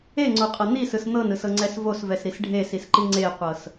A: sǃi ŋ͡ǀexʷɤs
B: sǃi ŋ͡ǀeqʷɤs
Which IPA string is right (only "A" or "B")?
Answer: B